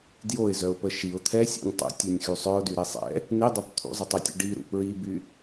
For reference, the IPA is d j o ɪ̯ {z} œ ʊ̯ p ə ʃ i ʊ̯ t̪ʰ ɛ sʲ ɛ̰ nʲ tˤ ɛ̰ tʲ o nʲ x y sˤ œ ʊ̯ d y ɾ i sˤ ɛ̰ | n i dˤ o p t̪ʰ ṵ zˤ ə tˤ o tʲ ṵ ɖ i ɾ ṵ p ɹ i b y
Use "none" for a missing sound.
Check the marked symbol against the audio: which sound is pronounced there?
z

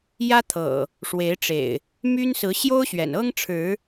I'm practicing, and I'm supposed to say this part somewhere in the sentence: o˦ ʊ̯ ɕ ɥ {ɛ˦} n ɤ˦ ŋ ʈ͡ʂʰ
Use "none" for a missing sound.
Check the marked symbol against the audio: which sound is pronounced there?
ɛ̰˨˩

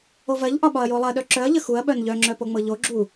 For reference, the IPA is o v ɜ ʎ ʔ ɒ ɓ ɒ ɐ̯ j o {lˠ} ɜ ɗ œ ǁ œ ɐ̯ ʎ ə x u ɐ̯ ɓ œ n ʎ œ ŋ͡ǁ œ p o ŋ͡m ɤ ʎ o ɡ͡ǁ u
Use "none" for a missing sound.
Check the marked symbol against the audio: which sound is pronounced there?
lˠ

